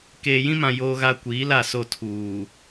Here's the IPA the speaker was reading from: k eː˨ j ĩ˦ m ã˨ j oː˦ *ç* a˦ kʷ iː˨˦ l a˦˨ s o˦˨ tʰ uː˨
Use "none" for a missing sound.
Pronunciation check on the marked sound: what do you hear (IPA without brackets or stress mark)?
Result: ɣ